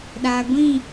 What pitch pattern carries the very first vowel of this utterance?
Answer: low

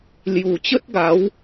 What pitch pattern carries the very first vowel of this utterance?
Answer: low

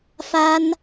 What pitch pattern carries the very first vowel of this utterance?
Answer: high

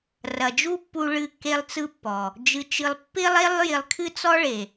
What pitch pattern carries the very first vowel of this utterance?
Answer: low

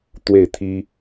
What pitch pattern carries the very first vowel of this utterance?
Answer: falling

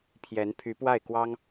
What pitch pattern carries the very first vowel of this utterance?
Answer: rising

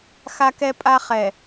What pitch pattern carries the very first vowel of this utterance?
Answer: high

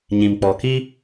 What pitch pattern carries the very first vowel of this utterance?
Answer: low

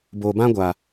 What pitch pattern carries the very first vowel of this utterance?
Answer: low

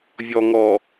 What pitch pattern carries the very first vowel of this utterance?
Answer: low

